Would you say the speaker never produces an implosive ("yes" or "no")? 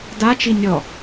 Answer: yes